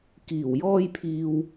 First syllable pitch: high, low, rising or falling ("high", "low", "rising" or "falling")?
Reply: low